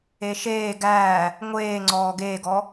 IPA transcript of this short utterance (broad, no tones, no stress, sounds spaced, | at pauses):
e ʃ eː ɡ æː | ŋʷ eː ŋ͡ǀ ɔː ɡ eː ɡ ɔ